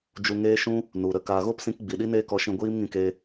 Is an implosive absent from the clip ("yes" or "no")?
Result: no